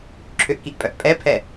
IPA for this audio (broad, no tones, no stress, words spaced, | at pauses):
ǁʰʏʔkiʔpʼœʔ pʼɛpʰɛ